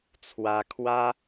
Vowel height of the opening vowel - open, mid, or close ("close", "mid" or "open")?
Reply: open